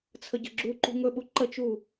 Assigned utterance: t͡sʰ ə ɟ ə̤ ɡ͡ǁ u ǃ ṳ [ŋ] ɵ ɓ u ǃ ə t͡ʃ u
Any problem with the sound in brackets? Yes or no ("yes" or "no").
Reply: no